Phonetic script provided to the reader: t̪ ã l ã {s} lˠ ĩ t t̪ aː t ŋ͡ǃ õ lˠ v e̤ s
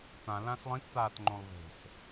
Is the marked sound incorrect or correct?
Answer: correct